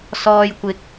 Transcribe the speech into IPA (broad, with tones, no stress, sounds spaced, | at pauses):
s ɔː˨ j kʷ ɪ˨ k̚